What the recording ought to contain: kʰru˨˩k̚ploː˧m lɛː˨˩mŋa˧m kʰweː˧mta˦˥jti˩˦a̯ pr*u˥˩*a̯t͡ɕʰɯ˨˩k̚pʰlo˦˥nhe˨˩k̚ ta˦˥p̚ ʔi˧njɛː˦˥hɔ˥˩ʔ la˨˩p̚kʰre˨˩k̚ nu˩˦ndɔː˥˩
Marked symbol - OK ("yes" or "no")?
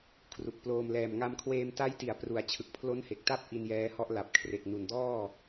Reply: no